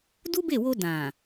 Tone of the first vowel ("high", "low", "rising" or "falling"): high